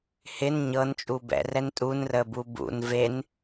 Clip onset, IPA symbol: h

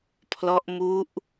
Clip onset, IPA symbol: pʰ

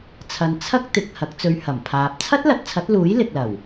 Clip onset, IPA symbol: t͡sʰ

